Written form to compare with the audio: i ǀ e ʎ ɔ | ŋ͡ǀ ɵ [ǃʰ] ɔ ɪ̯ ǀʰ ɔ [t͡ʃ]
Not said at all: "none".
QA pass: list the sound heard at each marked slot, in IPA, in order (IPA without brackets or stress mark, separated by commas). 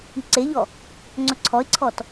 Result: ǀʰ, t